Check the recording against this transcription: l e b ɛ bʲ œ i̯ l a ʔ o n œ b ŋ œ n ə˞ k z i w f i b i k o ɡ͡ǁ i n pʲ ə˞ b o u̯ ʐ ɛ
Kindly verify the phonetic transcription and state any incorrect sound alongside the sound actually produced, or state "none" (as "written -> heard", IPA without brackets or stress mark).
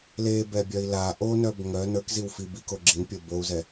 ʐ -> z